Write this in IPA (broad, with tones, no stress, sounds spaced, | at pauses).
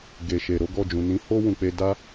ɡ e˨ ʃ e˨ ɾ o˨˦ ɡ ɔ˦˨ d͡ʒ ũ˨ n ĩ˨˦ h o˦ w ũ˧ k͡p e˧ d a˦